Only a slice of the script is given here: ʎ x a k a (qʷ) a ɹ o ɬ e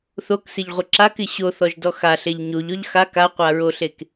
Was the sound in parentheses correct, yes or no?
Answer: yes